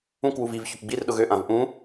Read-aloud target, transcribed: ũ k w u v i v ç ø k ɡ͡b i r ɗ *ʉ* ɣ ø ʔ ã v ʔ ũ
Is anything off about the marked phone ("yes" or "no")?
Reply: yes